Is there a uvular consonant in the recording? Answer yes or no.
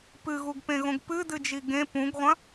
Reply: yes